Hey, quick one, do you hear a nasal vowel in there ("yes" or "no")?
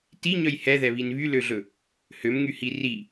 no